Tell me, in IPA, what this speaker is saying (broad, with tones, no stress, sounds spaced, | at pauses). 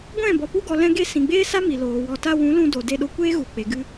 ɡʷ ɛ̃˦˨ b ɔ˨ p u˧ ɡ ɔ˨ l ɛ̃˧ ɡ e˧ s ĩ˨ ɡ͡b eː˦ s a˦ m i˨ l oː˨ w ɔ˨ t a˧ w ũ˨˦ l ũ˧ d o˨ d e˧ ɗ o˧ kʷ eː˦ ɣ u˨ k͡p e˨ ɡ ɨ˧